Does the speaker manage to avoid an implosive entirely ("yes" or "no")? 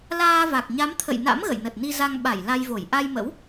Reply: no